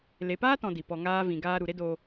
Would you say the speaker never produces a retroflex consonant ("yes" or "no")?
yes